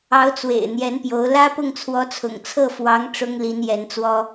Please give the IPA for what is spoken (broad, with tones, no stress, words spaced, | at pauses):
ɑ˧˥ʊ̯t͡swḛ˨˩ɪ̯ n̪jɛ˧˥npjo˧˥ʊ̯ lä˥pʊ˥˩ŋt͡sʰwɔ˧˥t͡sʰʊ̰˨˩ŋ t͡sʰɤ˥˩fwɑ˧˥ŋ ʈ͡ʂʊ˥ŋli˧˥njɛ˧˥nt͡swɔ˥